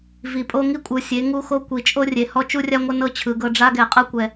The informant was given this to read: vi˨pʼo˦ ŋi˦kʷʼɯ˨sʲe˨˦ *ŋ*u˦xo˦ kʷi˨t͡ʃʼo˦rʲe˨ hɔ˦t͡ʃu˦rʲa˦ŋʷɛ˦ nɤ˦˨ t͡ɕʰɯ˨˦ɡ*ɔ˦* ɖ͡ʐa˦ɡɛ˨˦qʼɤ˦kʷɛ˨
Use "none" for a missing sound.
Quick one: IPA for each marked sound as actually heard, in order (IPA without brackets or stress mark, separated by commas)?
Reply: ŋ, ɤ˦